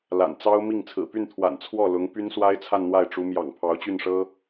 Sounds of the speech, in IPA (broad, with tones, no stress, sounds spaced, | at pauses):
l a̰˨˩ n t͡s ɑ˥ ʊ̯ m i˥˩ ŋ t͡sʰ ɹ̩˨˩ p y˥˩ n t̪ʰ w a̰˨˩ n t͡sʰ w ɔ˥˩ l ʊ˧˥ ŋ p y˥ n s w a˥ ɪ̯ t͡sʰ a˥˧ n n̪ w a˥˩ ɪ̯ ʈ͡ʂ u˧˥ m j ɑ̰˨˩ ŋ pʰ ɑ˧˥ ʊ̯ t͡ɕ y˥˩ n ʂ ɤ˥